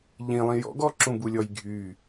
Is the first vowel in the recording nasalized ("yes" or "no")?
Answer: yes